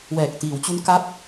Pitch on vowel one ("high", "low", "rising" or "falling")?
low